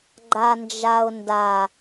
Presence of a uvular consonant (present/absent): absent